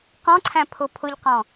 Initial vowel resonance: nasal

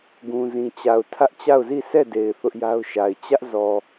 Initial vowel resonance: nasal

